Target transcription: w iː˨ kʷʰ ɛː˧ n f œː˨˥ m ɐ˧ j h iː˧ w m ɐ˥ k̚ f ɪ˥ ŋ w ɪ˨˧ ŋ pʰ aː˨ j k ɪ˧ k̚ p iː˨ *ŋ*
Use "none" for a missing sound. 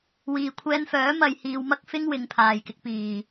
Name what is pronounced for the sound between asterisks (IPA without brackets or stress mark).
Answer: none